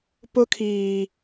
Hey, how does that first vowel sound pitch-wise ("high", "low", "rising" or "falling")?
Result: high